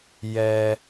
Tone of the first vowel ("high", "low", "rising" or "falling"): low